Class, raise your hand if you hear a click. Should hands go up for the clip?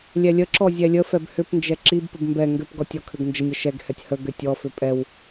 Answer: yes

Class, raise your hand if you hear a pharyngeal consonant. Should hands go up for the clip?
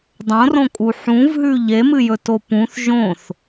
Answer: yes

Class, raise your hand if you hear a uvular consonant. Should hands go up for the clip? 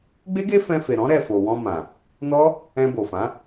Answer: no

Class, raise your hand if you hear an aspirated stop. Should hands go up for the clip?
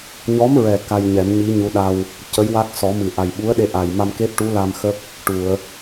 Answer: no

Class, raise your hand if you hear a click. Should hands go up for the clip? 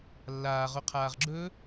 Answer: yes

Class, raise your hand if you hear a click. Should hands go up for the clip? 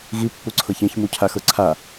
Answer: yes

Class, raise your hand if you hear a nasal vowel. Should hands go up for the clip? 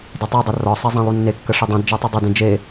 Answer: yes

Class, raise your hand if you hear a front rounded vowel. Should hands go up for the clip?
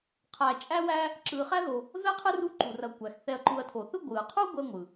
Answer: no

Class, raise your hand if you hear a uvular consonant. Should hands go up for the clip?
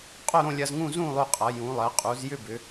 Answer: yes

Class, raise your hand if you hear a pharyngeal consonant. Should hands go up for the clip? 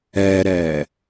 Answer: no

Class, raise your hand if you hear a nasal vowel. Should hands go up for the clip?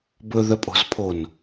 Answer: no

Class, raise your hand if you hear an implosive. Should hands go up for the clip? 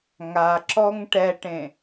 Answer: no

